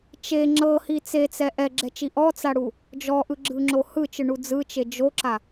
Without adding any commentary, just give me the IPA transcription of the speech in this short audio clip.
t͡ʃ e ŋ͡ǁ ɤ h i t͡s e t͡s ɛ ʔ ɛ ɡ͡ǁ ɛ t͡ʃ i ʔ ɔ t͡s a ɽ u | d͡ʒ ɔ ʔ ɯ ɡ͡ǁ ɯ ŋ͡ǁ o h ɯ t͡ʃ ɯ ɳ u d͡z ɯ t͡ʃ e d͡ʒ o ǁ a

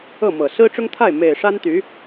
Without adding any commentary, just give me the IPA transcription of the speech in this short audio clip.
ɤ˥˩ m ɤ˨˩ s ɹ̩˥ ʈ͡ʂ ʊ˥ ŋ t̪ʰ a˥˩ ɪ̯ m e˨˩ ɪ̯ ʂ a˥ n t̪ y˧˥

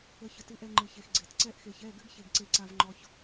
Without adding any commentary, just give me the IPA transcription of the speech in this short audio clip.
ə˧ ç ə˨ t ɨ˧ ʔ ɛ˧ ŋ͡ǃ ɨ˨ ç e˨ x ɡ͡ǀ e˨ t ǀ ɛ˧ ʔ x e˨ ç ɛ˦˨ ɡ ɘ˦ ɡ ç e˦ ɡ ǀ e˦ ǀ a˦ v ŋ͡ǃ ɔ˧ ç

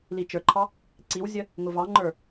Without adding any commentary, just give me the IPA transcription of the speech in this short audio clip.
l i t͡ʃ ə˞ ǃʰ ɑ | ǀ i w zʲ ə | ŋ ʊ v ɑ ŋ͡ǃ ə˞

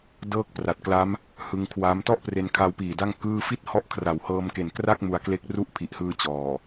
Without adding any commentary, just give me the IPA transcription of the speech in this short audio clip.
d ɤː˥˩ k̚ p r a˨˩ t̚ k l a˦˥ m | h ɯ˧ ŋ kʰ w a˦˥ m t ɔ˥˩ ʔ p r e˧ n kʰ a˧ w p iː˨˩ d a˥˩ ŋ k ɯː˥˩ f i˥˩ t̚ h ɔ˦˥ ʔ kʰ r a˩˦ w h ɤː˧ m k e˨˩ n k r a˥˩ k̚ m u˧ a̯ k l e˦˥ k̚ r u˦˥ ʔ pʰ i˨˩ ʔ h ɯː˧ t͡ɕ ɔː˨˩

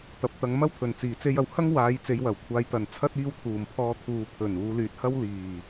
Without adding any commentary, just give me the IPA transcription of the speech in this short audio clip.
t̪ ɐ˨ p̚ t̪ ɐ˨˧ ŋ m ɐ˥ w t̪ʰ ɵ˨˩ n t͡s iː˨˩ t͡s e˧ j ɐ˨ w h ɐ˥ ŋ w aː˨˧ j t͡s e˨˧ j w ɐ˨˩ w kʷʰ aː˨˧ j t̪ ɐ˨ n t͡sʰ ɐ˥ t̚ iː˧ w t̪ʰ uː˨˩ m pʰ ɔː˧ t̪ʰ uː˨ pʰ ɵ˨˩ n uː˨˧ l yː˨ t̚ h ɐ˥ w l iː˨˩

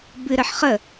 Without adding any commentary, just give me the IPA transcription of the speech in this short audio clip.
b ɨ ɾ ə ħ χ ə

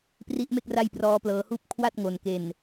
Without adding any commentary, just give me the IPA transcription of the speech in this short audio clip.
p r i˦˥ ʔ m e˥˩ k̚ r a˥˩ j p r ɔː˦˥ p l ɤː˧ h uː˥˩ p̚ kʰ w a˥˩ t̚ ŋ o˨˩ n k e˨˩ n

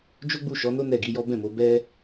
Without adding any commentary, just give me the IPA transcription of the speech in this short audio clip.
d͡ʒ o˦ ɡ͡b u˦˨ ʃ ɔ˨˦ n o˦ n ɛ˦˨ ɡ i˨˦ j ɔ˦ b ɛ̃˦˨ m o˨˦ b ɛ˦

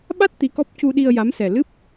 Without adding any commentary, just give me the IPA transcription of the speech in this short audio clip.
ɓ a˦˥ t̚ t̪ i˧˥ k ɔ˦˥ p̚ c u˧ ɗ i˧ ə̯ j a˧˥ m s ɛ˨˩ l ɨ˦˥ p̚

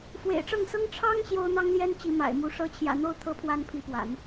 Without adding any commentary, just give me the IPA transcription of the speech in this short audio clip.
f w ḛ˨˩ ɪ̯ ʈ͡ʂ ɤ˥˩ ŋ s ɤ˥ ŋ ʈ͡ʂʰ ɑ˥ ŋ ɕ j o˥ ʊ̯ n̪ ɑ˥ ŋ l j ɛ˥ n t͡ɕ i˧˥ m a̰˨˩ ɪ̯ m u˧˥ ʂ ɤ˧˥ t͡ɕʰ j ä̰˨˩ n̪ o˥˩ ʊ̯ t̪ʰ ɤ˥ pʰ w a˥ n pʰ i˧˥ p w a̰˨˩˦ n

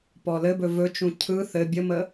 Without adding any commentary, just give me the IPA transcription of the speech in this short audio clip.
p ɔ l ɘ b ɵ v ɵ t͡ʃ ũ cʰ ɯ θ ɘ bʲ ə m ə

